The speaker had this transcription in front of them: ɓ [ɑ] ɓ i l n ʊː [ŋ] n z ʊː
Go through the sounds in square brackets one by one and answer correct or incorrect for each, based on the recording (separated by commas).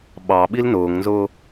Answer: correct, correct